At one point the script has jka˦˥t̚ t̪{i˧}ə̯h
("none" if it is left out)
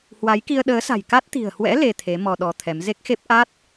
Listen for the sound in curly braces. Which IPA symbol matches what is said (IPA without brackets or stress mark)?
i̤˨˩